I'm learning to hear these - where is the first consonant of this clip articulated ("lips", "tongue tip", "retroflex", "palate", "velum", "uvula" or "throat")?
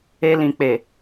tongue tip